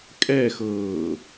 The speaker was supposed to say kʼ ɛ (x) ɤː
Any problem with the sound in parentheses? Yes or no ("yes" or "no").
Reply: no